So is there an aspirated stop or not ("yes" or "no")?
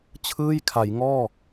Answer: yes